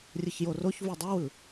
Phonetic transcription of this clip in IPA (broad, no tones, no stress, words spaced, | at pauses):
rʲɯçjoroç vudˤɯwɯ